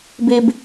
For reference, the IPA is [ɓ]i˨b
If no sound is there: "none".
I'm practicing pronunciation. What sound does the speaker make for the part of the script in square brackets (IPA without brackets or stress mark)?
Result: b